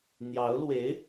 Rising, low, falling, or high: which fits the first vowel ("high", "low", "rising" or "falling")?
rising